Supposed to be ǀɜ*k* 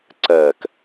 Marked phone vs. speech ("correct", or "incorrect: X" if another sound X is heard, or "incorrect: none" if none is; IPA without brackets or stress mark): correct